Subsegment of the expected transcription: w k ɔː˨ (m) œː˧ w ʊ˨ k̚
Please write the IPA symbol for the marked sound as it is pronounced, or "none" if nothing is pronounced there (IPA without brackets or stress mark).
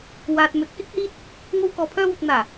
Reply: pʰ